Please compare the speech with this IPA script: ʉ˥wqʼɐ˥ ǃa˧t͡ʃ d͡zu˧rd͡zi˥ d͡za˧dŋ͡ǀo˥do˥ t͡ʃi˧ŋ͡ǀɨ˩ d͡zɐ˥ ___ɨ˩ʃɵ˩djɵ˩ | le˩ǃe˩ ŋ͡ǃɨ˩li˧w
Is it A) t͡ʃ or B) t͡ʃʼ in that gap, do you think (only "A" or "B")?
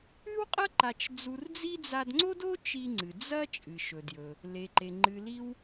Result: B